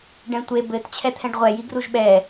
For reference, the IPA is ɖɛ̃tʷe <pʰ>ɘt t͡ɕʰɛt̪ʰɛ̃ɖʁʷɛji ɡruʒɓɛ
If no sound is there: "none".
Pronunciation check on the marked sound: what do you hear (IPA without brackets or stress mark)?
b